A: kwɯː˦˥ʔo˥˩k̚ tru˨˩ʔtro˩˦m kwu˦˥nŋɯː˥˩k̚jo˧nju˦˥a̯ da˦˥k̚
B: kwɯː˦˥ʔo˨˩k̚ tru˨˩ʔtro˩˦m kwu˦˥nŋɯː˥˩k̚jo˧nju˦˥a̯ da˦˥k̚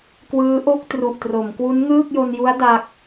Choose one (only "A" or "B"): A